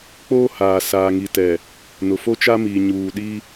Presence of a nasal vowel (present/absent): absent